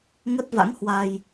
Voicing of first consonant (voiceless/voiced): voiced